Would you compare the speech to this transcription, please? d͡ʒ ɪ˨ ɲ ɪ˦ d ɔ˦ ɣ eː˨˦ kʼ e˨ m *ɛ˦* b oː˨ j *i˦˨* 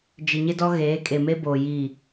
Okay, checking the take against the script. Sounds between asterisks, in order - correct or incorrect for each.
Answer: incorrect, correct

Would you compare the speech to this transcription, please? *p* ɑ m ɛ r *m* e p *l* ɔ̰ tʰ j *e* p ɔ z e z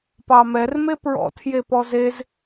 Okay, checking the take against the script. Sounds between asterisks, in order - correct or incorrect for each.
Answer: correct, correct, incorrect, correct

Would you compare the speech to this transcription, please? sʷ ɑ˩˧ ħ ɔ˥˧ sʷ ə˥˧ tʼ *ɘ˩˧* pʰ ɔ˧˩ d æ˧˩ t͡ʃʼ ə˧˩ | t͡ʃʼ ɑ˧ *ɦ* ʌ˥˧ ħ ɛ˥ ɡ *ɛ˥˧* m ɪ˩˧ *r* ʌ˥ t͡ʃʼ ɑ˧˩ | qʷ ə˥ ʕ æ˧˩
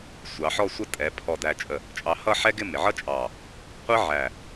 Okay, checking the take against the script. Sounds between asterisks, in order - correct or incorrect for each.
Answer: incorrect, incorrect, incorrect, incorrect

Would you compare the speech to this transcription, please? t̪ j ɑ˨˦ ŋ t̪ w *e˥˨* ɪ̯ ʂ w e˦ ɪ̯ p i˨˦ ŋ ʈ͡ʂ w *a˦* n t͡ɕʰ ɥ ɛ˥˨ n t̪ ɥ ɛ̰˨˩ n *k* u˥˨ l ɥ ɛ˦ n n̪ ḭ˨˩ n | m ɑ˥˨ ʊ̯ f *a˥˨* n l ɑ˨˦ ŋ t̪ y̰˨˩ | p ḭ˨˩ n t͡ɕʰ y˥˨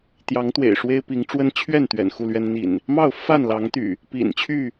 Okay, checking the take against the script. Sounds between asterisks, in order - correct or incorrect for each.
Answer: incorrect, incorrect, incorrect, correct

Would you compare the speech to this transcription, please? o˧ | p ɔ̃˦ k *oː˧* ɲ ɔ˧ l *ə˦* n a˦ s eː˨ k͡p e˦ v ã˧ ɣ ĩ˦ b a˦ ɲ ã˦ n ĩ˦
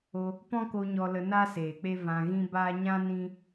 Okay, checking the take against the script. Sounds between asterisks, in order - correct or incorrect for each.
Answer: incorrect, incorrect

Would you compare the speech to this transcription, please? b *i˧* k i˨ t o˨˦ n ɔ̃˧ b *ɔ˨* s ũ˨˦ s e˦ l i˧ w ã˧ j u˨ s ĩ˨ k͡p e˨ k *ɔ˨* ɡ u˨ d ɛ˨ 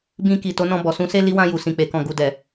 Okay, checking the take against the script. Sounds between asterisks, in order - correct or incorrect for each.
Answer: incorrect, correct, incorrect

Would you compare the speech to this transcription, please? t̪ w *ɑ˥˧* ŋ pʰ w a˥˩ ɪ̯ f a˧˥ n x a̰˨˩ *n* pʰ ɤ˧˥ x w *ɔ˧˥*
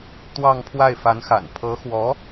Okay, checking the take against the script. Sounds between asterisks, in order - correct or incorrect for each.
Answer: correct, correct, correct

